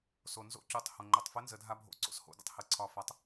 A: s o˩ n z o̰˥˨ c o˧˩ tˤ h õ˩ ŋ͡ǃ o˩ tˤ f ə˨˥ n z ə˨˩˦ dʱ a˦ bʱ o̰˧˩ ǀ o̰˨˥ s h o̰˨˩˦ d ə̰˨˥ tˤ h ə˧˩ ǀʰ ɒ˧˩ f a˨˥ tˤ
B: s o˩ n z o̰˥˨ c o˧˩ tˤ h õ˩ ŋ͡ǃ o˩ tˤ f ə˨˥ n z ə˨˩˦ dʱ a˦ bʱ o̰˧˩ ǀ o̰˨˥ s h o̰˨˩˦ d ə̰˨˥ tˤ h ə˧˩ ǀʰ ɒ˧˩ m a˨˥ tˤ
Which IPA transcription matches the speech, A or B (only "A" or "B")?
A